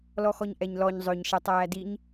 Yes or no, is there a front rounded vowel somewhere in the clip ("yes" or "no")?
yes